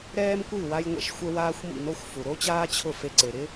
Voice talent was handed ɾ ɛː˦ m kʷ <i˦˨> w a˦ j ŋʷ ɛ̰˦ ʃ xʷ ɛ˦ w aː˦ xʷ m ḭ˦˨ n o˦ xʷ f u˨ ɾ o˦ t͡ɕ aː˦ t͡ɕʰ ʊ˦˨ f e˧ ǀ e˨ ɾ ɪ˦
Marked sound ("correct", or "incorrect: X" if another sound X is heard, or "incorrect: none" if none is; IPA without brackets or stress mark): correct